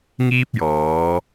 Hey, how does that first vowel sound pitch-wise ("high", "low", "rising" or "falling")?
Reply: high